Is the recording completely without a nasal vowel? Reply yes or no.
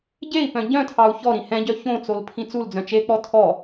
no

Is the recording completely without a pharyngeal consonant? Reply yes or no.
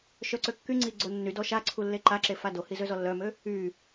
yes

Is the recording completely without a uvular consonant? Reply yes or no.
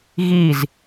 yes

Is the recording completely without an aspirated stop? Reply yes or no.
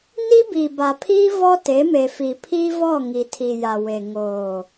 no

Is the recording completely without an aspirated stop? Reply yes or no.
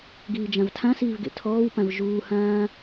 no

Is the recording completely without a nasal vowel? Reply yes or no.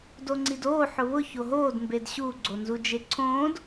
no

